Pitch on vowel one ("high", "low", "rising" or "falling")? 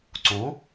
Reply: rising